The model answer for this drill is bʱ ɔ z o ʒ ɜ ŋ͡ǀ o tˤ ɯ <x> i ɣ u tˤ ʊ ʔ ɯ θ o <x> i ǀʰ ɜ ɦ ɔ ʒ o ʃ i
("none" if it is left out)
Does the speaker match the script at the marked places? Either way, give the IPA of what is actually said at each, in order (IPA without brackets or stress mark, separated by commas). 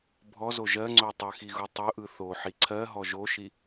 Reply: x, ħ